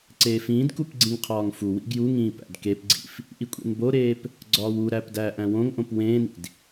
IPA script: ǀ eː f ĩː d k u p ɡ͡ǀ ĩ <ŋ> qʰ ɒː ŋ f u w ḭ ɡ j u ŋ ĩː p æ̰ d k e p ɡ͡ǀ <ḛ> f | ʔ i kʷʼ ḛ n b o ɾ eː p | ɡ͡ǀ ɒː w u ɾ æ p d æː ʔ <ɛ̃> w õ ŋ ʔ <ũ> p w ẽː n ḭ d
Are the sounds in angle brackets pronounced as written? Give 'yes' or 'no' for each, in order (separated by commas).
yes, no, no, no